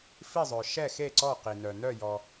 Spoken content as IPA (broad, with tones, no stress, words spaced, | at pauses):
fi˥˨zˤœ˨ ʃɛ˥˨xe˥˨ ǀɔ˥˨qi˨nœ˨ nœ˥˨jɔ˨